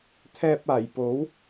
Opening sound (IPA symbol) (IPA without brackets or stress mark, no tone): t̪ʰ